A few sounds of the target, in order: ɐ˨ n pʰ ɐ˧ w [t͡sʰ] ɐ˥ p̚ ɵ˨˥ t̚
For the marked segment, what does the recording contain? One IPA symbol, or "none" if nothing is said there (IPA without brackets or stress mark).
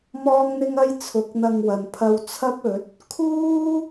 t͡sʰ